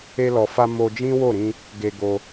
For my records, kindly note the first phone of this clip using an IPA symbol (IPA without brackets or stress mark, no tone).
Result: e